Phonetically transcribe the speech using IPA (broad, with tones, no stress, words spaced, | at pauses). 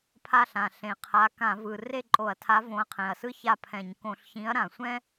pʰa˥˨ɬã˨˩ ɬẽ˨˩qʰa˨˥ kã˧˩˧vɯ˨˩ re˥˨ǃʼo˧˩˧ɐ̯tʰa˨˥ võ˨˥ɐ̯qʰɛ̃˨˩ɐ̯sɯ˥ ça˥˨pʰɛ̃˧˩˧ɲ kõ˧˩˧ɬçĩ˨˥ɐ̯ ɾã˨˩sʷɛ̃˥